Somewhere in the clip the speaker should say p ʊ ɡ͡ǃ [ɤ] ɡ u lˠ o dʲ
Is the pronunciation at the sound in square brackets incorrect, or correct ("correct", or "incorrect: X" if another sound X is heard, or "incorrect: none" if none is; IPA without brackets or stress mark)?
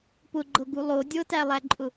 correct